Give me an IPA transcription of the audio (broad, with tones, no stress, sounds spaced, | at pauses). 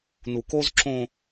n u˨ k o˦ z ǁ õ˦